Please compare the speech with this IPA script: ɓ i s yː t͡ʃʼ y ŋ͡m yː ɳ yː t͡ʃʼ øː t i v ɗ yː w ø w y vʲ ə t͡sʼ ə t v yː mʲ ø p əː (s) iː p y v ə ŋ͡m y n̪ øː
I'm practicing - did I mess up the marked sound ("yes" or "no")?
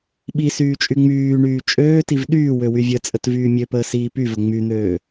no